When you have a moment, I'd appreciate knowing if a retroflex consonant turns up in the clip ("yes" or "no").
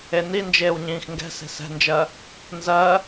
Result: no